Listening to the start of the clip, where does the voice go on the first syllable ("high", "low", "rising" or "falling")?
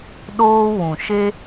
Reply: high